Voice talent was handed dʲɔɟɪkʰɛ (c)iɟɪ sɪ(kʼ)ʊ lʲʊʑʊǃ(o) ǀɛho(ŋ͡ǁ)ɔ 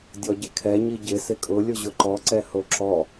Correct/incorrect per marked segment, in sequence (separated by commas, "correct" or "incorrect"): incorrect, correct, incorrect, incorrect